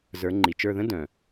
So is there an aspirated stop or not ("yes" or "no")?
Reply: no